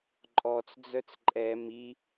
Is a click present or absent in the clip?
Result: present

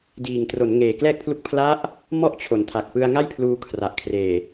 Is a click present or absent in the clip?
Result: absent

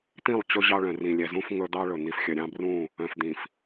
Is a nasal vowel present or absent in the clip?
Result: present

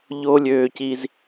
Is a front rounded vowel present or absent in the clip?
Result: present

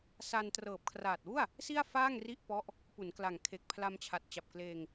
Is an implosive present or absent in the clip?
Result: absent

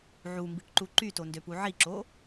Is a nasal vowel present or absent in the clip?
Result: absent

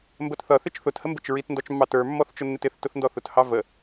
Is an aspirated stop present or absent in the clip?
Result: absent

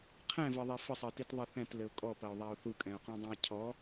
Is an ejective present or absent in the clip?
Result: present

